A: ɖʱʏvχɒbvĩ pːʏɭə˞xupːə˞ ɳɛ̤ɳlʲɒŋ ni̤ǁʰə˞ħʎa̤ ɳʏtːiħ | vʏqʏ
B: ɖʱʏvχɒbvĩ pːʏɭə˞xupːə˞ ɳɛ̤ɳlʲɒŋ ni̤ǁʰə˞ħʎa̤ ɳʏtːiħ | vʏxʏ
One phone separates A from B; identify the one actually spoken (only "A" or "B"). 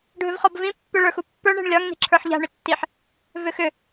B